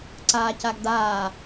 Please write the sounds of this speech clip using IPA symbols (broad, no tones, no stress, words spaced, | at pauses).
ǀaːcaɡdaː